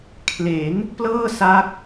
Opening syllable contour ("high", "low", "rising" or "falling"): rising